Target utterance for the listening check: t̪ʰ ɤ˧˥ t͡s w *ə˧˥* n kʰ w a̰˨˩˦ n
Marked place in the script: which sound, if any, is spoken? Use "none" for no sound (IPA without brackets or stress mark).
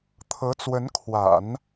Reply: ə˧˥